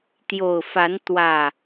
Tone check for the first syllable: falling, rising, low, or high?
low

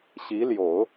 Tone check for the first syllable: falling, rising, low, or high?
rising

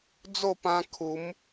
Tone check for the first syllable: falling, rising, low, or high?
falling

